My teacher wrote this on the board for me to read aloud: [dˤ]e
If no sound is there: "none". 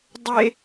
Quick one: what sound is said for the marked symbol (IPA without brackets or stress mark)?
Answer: dˤ